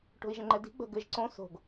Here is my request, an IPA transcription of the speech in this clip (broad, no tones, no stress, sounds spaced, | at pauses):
ʈ o̤ i̯ ʒ ə̃ ŋ͡ǃ ɛ d i̤ ɡ͡b ə̤ ɡ ɘ ʒ ǀ õ s o̤ ɡ